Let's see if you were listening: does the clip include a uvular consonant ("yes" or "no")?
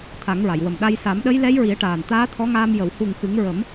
no